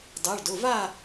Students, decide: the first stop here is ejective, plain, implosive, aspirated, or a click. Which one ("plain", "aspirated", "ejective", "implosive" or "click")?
plain